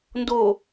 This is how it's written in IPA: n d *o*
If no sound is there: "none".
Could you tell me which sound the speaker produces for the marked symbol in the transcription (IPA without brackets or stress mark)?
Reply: o